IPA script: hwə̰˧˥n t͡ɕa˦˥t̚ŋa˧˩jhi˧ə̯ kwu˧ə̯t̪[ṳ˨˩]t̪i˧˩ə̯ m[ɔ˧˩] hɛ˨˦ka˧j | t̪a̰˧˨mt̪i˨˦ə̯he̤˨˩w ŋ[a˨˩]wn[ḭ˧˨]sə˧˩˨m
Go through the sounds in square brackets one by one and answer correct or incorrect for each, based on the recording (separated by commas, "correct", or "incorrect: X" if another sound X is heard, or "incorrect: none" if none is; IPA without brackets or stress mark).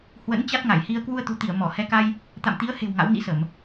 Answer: correct, correct, incorrect: a̰˧˥, incorrect: ḭ˧˥